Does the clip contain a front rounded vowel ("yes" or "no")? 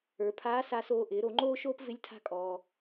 no